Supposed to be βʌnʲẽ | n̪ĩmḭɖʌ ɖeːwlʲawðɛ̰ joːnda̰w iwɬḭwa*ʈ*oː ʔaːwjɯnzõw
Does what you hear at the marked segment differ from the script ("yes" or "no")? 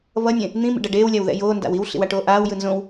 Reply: no